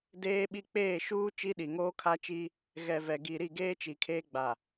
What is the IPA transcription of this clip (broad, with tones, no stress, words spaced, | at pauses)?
deː˦ɓi˦ k͡peː˦˨ʃuː˦ t͡ʃi˦ɗi˨ŋoː˦ kʰa˦t͡ʃi˦ | ɣɛ˨vɛ˨ ɡi˨ɾi˦˨ɡeː˦ t͡ʃi˨kʰeː˦ɡ͡ba˨